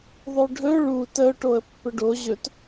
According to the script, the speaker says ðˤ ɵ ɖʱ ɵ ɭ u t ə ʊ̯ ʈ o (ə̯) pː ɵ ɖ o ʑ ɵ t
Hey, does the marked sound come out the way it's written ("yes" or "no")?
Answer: yes